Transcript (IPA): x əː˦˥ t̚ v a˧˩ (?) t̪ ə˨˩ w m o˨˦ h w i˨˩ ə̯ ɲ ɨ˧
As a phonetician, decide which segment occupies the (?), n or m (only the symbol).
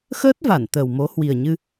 n